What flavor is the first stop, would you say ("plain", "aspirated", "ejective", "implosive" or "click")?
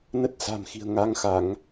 plain